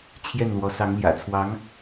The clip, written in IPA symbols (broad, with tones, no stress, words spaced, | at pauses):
t͡ɕʰjɛ˥˩nlwɔ˧˥ sɑ˧˥ŋljä̰˨˩ t͡sʰwɑ˧˥ŋ